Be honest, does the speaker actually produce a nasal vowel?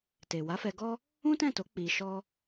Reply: yes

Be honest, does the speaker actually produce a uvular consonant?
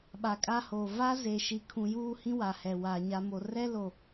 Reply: no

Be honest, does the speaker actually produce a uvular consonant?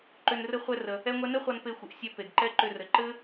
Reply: yes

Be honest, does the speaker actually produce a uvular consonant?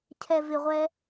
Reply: yes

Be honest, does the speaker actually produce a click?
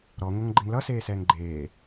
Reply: yes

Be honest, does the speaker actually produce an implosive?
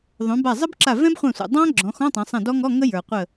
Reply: no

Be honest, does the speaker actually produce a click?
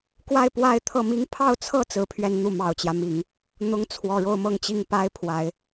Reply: no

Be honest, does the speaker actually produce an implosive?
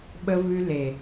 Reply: yes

